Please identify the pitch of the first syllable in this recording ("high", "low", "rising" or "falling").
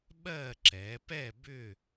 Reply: falling